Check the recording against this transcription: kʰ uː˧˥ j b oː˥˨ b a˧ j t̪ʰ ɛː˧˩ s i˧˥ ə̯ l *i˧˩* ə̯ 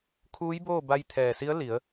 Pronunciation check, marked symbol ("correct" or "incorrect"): incorrect